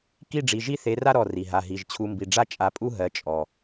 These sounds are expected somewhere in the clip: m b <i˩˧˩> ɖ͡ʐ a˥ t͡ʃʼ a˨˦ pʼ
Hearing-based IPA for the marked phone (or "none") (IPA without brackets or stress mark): i˩˧˩